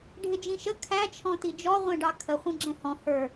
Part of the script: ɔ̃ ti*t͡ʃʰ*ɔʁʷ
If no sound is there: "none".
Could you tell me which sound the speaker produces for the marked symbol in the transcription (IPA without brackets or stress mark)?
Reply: d͡ʒ